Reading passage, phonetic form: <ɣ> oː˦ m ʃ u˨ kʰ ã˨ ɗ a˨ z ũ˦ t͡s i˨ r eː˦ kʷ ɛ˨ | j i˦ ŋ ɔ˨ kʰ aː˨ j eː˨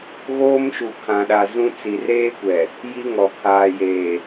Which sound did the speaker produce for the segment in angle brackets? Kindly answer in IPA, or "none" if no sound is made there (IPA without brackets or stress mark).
ɣ